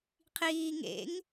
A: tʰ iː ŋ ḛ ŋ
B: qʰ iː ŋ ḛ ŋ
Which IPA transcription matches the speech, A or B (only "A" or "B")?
B